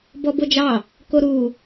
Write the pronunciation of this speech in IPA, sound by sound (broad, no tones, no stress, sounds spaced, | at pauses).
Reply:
b ɔ b o d͡ʒ ɑ | k o ɾ u